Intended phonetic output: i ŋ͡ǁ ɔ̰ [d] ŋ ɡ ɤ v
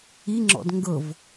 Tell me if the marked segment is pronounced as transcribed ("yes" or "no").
yes